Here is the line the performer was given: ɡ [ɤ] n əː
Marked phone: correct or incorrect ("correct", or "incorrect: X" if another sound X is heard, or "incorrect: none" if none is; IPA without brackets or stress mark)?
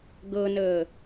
correct